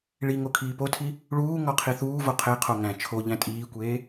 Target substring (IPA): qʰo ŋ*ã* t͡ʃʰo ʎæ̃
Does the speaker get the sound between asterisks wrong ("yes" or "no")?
yes